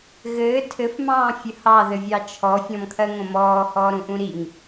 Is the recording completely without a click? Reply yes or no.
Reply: yes